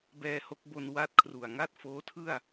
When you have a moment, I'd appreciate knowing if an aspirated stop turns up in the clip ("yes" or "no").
yes